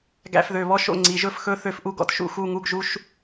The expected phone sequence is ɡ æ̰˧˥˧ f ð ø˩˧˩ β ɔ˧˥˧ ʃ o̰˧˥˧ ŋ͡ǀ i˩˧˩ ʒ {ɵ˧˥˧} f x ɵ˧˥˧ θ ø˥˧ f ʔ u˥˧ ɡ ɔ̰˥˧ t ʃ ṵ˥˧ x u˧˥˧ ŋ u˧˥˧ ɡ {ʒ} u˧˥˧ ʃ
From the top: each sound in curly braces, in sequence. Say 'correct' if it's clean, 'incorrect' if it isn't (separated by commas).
incorrect, correct